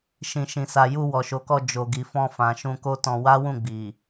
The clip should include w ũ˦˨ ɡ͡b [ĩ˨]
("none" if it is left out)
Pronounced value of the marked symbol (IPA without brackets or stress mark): i˨